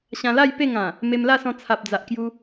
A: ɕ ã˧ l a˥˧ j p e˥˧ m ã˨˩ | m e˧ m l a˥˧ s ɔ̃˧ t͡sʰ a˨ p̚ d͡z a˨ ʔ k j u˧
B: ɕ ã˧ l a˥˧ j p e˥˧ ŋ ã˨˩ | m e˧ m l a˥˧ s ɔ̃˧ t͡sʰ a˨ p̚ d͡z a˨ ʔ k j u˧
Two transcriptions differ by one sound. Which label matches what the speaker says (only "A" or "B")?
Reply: B